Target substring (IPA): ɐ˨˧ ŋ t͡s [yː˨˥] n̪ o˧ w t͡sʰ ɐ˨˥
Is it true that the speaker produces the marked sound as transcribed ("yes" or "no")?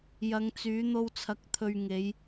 yes